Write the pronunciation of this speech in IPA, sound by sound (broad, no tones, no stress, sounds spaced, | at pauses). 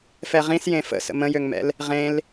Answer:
f ɛ ʁ ĩ s j ẽ f ə̰ s ə̰ m ə̃ j ø ŋ m ɛ̰ l | ʁ ẽ l